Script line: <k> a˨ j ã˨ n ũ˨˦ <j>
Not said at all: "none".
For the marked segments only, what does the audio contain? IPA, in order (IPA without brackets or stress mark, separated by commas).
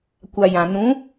kʷ, none